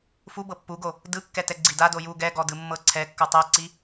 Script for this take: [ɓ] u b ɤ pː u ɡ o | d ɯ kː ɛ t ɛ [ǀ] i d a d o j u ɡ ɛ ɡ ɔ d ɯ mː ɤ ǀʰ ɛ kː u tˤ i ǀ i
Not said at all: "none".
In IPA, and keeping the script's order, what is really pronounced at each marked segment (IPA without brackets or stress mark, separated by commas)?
f, ɡ͡ǀ